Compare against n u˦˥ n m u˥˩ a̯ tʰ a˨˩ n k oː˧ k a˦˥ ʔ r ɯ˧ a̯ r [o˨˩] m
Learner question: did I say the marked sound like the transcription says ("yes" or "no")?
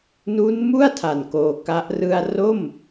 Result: no